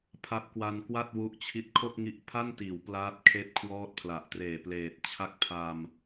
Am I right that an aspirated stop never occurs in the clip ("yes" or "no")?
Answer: no